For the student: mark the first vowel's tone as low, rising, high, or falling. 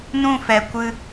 falling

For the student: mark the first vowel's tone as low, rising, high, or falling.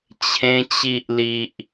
high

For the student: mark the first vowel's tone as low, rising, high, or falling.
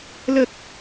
low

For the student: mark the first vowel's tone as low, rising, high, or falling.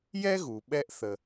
high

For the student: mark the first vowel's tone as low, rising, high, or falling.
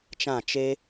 falling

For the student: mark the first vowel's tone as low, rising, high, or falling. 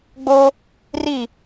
high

